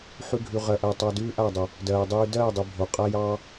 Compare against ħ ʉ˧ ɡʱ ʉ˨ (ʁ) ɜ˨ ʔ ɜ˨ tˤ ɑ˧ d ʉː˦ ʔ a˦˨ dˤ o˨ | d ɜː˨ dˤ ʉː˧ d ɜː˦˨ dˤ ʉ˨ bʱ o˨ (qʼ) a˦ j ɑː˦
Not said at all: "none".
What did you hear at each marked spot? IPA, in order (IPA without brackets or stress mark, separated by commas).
ʁ, qʼ